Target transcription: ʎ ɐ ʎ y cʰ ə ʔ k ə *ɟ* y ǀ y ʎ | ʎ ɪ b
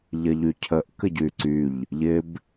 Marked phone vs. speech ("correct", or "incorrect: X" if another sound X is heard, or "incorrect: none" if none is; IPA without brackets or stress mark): correct